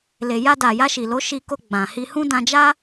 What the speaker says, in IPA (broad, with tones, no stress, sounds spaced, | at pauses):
l e˨ j a˧ d a˨ j a˧ ʃ i˨ l o˨˦ ʃ i˧ k o˧ ɡ͡b ã˨ h i˧ h ũ˦ d ã˧ d͡ʒ a˦